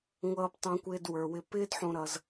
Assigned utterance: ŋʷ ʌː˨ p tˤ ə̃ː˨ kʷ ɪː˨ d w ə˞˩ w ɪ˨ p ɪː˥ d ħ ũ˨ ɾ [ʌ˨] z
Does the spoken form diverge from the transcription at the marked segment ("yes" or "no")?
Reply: no